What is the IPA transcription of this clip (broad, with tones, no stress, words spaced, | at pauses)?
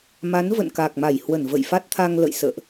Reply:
ma˨˦nvə̰˧˨n kaː˨˩k̚ma˧˩jhwə˧˩n və̰˧˨jfa˦˥t̚t̪ʰa˧ŋlə̰˧˨j sə̰ː˧˨ʔ